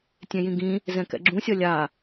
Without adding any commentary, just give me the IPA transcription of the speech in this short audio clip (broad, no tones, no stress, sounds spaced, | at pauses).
tʲ ẽ j ĩ ɡ ĩ | z ɛ̃ k ɛ̰ ɡ͡ǁ ũ sʲ ʌ lʲ a